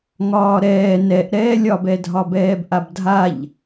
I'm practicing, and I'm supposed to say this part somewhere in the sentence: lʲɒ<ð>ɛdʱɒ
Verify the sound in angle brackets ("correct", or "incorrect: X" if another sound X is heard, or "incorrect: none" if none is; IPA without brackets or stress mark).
incorrect: b